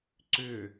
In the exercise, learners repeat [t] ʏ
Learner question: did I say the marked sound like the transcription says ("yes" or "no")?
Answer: no